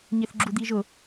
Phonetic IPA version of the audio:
ɲ ɪ θ ɡ͡ǁ u d̪ i ʒ ʊ

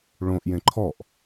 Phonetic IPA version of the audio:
ɭ õ ʔ j ẽ ǃʰ ɔ ʔ

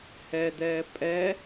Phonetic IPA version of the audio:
h ɛ d ɛː pʼ ɛ

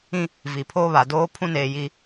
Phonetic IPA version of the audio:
ĩ˦ | v i˨ pʰ oː˦ β a˨ d oː˦ pʰ ũ˦ n eː˨ j i˦

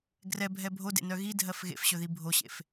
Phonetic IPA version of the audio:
ɡ r ɛ bʱ ɛ bʱ o d ḛ n œ ɣ i dʱ ɜ f ɣ ḛ f ɕ ɵ ð i bʱ o ɕ ḛ f

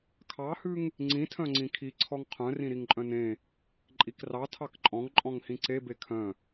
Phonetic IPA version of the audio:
kʰ ɑ h ʉ ŋ | ŋ͡ǀ ĩ tʰ œ̃ ŋ͡ǀ ĩ kʰ i ǀʰ ɔ ŋ qʰ œ̃ r ĩ ɾ i ŋ ǃʼ œ̃ n ẽ | ǃʼ i k r ɑ tʰ ɑ k ǃʼ ɔ̃ ŋ ǃʼ ɔ̃ ŋ h ĩ ǀ e b e kʰ œ̃

